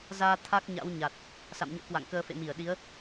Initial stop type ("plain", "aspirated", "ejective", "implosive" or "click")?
aspirated